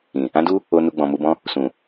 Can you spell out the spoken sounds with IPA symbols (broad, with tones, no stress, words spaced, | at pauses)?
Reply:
ĩ˨ | ã˦du˦ | o˧ nu˧ɡ͡bɔ̃˨mu˧bɔ̃˦ | sũ˨